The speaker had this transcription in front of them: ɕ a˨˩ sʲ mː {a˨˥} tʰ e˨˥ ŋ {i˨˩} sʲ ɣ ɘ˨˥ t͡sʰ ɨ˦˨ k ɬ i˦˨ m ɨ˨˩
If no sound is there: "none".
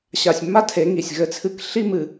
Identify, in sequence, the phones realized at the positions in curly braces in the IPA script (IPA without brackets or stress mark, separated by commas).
a˥, i˨˩